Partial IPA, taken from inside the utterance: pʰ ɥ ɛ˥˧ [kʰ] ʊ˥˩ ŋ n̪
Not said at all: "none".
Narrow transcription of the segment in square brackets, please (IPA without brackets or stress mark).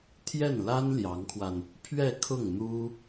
kʰ